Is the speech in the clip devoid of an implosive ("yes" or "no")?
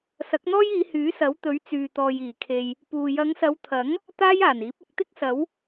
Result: yes